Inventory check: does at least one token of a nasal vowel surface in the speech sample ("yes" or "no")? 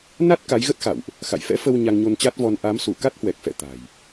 no